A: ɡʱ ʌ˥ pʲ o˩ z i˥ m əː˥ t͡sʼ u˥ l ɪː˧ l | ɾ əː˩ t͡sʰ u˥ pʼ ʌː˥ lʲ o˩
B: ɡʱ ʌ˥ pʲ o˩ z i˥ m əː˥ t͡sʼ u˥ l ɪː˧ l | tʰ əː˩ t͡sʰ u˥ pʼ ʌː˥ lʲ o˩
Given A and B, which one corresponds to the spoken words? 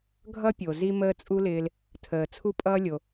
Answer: B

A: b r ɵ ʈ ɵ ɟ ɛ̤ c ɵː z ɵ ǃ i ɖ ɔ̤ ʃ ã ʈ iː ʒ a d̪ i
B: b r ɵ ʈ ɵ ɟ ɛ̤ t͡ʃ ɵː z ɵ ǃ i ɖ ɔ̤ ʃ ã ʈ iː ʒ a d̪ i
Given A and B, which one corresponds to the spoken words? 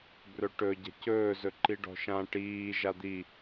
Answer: A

